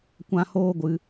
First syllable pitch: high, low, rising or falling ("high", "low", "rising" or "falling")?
high